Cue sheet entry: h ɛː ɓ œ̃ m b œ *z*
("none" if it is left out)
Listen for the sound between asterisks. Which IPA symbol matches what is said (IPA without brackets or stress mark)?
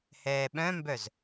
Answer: z